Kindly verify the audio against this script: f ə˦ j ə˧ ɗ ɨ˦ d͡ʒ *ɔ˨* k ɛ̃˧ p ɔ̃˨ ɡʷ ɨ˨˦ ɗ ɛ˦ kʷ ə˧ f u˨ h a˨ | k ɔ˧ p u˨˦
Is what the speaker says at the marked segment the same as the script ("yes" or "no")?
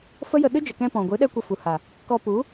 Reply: no